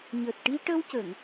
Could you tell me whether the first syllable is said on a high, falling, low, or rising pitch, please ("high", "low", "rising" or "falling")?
low